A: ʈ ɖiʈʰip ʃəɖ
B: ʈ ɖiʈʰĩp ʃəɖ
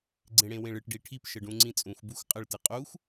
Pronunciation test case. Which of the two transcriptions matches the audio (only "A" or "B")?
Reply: A